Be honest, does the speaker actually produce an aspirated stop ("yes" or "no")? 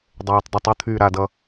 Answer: yes